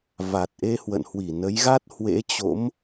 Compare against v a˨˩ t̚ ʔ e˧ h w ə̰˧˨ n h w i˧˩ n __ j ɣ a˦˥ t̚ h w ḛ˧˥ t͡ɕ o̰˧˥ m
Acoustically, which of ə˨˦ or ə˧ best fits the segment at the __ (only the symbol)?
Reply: ə˨˦